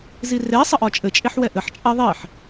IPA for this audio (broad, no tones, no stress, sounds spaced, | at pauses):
z i r e sˤ ə ʔ ɒ t͡ʃʼ ɘ t͡ʃʼ e ħ w ɛ ʔ ɘ ħ t͡ʃʼ ɛ ðˤ e ħ